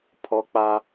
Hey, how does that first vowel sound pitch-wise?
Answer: high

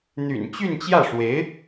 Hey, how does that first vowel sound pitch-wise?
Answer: low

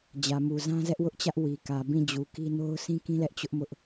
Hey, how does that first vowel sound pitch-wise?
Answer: low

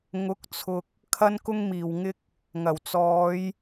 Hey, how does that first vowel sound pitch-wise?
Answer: rising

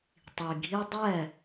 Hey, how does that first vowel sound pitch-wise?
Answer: low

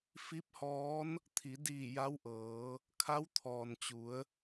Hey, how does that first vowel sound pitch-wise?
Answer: rising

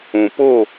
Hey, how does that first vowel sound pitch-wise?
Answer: low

